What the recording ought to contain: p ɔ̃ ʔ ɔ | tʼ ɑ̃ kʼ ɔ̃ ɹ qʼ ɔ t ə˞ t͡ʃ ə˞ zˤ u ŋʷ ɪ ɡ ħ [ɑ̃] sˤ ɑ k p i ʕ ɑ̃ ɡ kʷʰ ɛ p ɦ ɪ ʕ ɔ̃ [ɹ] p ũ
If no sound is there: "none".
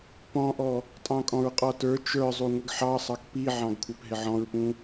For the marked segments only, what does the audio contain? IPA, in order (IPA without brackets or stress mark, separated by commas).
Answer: ɑ, ɹ